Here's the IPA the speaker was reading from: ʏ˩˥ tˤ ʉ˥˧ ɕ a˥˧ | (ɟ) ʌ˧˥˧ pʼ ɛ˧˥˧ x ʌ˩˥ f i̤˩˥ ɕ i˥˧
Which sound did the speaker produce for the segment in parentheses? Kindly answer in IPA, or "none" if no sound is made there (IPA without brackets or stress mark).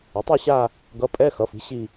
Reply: ɡ